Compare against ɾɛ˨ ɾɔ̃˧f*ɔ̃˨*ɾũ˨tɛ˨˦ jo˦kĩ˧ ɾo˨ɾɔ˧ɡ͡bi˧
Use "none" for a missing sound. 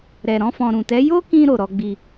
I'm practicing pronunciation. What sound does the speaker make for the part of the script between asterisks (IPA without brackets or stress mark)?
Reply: ɔ̃˨